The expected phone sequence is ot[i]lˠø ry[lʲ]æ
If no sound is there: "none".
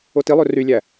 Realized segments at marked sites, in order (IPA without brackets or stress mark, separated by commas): i, lʲ